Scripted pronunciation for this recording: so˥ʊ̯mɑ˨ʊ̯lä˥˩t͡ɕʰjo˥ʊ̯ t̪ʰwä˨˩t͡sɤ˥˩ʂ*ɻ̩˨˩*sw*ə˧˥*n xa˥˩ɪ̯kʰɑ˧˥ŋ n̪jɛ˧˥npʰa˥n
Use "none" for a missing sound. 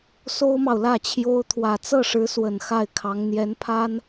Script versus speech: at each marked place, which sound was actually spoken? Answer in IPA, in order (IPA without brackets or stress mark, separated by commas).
ɻ̩˧˥, ə˨˩